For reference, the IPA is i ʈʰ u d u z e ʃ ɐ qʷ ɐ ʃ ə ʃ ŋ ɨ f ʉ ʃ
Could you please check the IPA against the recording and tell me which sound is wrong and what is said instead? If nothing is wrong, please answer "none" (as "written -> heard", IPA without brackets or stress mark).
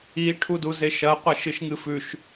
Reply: ə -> ɨ